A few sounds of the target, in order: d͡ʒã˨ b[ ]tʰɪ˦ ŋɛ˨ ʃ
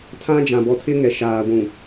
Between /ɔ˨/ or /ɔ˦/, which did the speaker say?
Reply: ɔ˨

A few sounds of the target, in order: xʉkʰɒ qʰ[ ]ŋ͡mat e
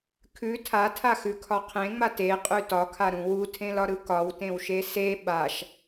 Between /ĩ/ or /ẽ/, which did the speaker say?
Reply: ẽ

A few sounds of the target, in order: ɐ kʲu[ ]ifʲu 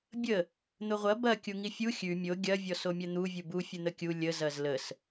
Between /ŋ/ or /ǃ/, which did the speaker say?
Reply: ŋ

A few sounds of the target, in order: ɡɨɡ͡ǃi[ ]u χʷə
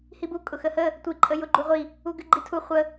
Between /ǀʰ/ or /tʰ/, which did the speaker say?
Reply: tʰ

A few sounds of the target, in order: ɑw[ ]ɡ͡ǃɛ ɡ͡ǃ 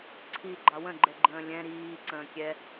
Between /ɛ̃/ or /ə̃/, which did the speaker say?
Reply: ə̃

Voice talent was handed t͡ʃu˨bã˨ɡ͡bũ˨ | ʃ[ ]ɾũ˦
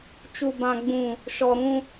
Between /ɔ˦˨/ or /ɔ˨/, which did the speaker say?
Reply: ɔ˨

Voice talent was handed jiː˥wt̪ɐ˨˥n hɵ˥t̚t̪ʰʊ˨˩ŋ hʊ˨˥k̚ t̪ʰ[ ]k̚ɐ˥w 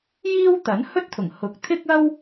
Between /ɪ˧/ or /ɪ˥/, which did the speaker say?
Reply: ɪ˥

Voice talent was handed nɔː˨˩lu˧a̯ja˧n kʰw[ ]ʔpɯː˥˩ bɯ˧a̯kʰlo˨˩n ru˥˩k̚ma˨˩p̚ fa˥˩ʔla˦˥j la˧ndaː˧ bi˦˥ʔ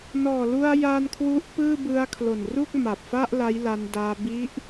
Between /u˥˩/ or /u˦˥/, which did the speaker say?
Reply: u˦˥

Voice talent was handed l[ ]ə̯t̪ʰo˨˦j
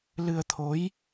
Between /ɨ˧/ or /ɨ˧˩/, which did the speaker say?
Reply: ɨ˧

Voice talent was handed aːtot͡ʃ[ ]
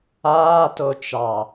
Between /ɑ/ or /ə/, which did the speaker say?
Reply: ɑ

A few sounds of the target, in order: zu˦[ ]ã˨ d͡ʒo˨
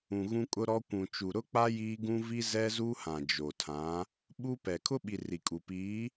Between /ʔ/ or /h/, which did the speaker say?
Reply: h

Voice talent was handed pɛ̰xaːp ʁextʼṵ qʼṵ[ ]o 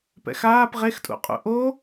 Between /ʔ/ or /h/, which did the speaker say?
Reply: ʔ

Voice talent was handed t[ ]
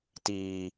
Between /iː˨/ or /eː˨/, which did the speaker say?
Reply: iː˨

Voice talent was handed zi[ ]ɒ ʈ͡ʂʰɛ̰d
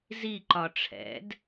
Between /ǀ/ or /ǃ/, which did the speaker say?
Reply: ǃ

